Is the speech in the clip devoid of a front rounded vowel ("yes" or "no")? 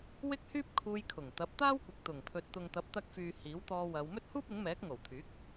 no